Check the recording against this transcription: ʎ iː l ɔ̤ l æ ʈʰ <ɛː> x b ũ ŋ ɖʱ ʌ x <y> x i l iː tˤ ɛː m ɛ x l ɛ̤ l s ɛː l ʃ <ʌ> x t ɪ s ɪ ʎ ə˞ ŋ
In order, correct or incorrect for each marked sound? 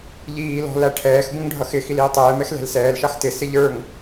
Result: correct, incorrect: ɪ, incorrect: ɑ

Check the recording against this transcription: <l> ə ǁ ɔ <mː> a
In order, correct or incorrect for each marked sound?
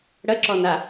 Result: incorrect: ɽ, incorrect: n

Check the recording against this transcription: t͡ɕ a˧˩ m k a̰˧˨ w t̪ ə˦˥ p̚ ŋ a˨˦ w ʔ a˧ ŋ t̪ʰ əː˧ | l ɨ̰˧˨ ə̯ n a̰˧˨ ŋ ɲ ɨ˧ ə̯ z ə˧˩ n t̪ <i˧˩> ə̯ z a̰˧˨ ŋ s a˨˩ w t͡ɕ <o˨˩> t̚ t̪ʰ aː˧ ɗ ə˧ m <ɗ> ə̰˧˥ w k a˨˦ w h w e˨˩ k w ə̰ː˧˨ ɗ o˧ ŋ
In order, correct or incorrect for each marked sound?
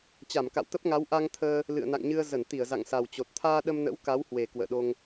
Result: correct, correct, incorrect: n

